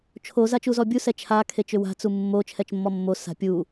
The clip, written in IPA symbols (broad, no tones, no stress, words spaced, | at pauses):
t͡ʃʰo zat͡ʃuzɔbʲu sɛt͡ʃʰa kʰet͡ʃʏwa̤ t͡sumːo t͡ʃʰɛt͡ʃmːɔmːo sa̤pʲu